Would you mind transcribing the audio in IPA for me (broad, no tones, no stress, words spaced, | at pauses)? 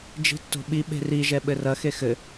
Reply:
d͡ʒi̤tːo̤ɓi ɓe̤ri ʒɛɓɘrɐ xexɘ